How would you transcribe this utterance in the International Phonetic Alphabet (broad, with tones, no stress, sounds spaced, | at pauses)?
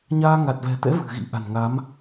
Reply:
ɲ aː˧ ŋ a˨˩ t̚ v ɛ̤˨˩ t̪ ɛ̰˧˥ v ɨ̤˨˩ ɣ ḭ˧˥ ʔ a̤˨˩ n ŋ a˨˦ m